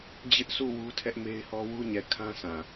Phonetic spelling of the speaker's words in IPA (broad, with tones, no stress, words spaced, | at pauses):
d͡ʑɪ˦ʔsu˦˨ wu˦tʰɛ˦ʔme˦ɪ̯hɔ˦ wu˦ɲɛ˨kʰã˦ sã˨